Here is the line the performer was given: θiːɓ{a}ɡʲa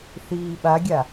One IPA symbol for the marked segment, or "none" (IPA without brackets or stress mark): a